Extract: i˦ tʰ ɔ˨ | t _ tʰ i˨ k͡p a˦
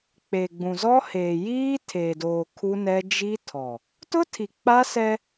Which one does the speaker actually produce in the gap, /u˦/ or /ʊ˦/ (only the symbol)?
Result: ʊ˦